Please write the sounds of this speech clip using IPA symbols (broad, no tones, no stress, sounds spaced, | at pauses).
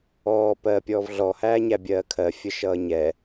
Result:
ɔː p ɜː pʲ ɔː v ɮ ɔ h æː ɲ æ bʲ ɜː kʰ ɜ fʲ ə ʃ ʌː ɲ ɛ